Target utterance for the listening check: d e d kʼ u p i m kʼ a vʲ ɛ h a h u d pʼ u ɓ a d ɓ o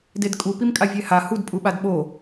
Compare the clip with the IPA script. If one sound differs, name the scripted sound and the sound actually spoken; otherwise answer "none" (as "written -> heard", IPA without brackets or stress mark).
none